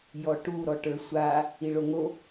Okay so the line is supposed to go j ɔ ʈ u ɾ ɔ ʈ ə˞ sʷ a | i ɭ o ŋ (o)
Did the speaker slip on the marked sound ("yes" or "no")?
no